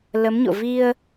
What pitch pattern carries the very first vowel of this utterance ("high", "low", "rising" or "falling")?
rising